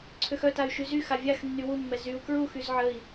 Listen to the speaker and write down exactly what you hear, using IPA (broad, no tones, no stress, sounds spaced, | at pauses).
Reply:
ǀʰ ø x œ t a y̯ ʃ y z y x a vʲ a x nː y w u mː ɛ z y u̯ k ɹ u x y z ʕ ə i̯